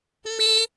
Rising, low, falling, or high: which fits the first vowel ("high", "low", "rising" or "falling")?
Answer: high